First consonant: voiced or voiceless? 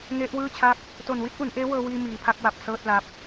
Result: voiced